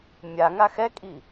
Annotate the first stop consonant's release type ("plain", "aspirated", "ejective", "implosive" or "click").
ejective